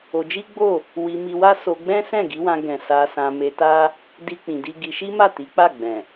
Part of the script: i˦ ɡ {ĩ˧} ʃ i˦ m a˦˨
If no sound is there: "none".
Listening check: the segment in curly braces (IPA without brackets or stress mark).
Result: i˧